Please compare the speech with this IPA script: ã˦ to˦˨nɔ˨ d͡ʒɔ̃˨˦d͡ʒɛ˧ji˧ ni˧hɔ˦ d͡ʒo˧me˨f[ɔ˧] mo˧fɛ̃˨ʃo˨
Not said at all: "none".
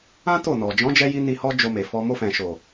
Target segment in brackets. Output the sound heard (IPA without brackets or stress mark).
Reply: ɔ˧